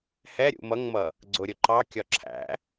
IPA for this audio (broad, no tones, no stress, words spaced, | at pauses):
hɛ ɾʲṵmʌŋmʌ | ɡ͡ǀʊɾʲʊ ǃɑkʲɒ ǁʰæ̰